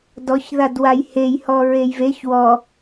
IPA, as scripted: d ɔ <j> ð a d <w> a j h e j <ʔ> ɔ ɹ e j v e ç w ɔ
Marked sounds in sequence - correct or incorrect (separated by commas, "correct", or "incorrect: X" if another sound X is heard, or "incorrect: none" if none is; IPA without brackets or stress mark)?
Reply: incorrect: ç, correct, incorrect: h